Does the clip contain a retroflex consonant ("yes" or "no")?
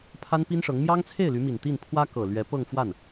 yes